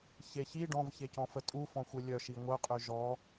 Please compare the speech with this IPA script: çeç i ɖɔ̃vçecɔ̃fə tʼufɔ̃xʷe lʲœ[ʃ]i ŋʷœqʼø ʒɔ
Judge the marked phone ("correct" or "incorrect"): correct